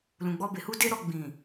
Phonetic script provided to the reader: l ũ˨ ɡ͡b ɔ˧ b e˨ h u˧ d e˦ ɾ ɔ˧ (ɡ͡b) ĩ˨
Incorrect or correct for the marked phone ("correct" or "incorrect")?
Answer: correct